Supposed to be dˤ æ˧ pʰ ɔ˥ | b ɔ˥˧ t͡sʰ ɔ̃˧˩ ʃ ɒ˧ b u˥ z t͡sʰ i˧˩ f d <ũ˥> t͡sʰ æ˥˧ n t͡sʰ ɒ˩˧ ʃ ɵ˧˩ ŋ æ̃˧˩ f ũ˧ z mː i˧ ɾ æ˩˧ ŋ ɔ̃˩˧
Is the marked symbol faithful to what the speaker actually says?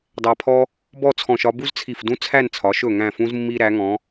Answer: yes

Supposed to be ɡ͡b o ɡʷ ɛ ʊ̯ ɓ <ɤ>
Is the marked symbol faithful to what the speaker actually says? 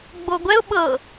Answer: yes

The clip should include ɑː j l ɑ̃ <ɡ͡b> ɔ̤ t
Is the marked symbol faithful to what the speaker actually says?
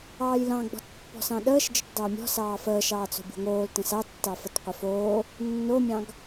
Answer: yes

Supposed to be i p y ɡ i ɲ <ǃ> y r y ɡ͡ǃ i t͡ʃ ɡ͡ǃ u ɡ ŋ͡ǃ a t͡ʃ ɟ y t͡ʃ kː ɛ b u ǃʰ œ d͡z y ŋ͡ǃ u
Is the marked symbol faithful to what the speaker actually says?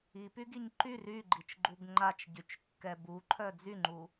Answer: yes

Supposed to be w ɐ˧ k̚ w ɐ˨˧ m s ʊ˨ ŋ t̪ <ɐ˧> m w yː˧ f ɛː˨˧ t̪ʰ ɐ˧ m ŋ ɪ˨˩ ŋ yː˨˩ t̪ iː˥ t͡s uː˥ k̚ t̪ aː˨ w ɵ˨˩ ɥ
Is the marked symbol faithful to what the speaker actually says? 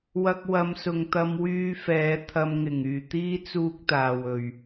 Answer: yes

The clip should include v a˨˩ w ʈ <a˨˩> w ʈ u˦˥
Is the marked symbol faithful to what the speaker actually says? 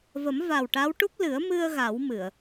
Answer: no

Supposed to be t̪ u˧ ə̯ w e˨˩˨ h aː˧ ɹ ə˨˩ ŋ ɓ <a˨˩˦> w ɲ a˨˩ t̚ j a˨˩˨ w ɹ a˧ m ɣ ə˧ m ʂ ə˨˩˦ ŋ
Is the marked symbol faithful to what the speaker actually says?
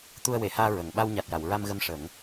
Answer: no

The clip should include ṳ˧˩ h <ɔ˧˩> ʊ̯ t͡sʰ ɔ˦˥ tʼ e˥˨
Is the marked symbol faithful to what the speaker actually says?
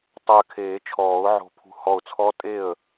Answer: yes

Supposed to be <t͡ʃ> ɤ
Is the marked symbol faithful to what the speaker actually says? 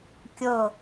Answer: no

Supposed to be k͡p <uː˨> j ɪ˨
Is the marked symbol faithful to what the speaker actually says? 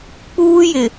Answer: no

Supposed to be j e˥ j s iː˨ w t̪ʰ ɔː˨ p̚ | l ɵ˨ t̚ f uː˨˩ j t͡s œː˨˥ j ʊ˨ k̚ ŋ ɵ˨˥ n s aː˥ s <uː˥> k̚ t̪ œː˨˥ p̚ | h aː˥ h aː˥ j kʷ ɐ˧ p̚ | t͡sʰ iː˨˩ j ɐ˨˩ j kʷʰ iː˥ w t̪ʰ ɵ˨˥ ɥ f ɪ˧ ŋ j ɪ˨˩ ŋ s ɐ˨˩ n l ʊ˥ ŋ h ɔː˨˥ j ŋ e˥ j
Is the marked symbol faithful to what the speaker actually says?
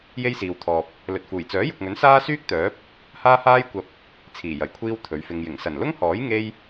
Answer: no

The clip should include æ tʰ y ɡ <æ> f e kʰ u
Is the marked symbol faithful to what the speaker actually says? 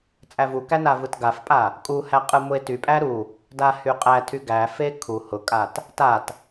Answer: yes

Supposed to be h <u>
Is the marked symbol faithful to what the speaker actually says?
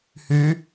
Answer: no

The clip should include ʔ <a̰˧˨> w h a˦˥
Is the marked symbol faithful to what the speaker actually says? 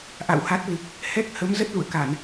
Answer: yes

